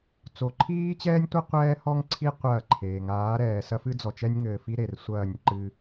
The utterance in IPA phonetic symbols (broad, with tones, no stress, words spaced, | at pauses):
t͡so˨ǃʰiː˦t͡ɕɛː˦nʲtʷɐ˦ qʷɛː˦hɔ˦ŋǀʰi˦ qʷɐː˦˨ǃʰeː˨ ŋaː˨˦ɾɛː˨ sɐ˦fɨ˦ d͡zɔ˨t͡ʃɛ˦nʲŋɘː˨fi˦ ɾe˨rsʷɐː˦˨nʲǃɨ˦